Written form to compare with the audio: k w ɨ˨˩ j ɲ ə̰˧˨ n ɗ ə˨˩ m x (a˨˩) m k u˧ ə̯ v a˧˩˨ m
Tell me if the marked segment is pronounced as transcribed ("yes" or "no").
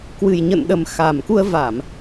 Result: yes